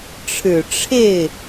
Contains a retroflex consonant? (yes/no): yes